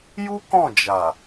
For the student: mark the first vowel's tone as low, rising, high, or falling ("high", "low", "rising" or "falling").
high